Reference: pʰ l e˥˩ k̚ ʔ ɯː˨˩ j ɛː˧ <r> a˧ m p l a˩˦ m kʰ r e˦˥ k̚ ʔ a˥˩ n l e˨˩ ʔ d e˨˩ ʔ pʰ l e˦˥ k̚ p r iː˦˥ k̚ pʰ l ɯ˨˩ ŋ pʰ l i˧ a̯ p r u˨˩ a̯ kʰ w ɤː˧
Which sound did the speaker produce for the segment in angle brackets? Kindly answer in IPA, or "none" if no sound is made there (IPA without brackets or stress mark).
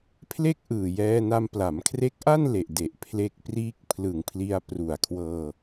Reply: n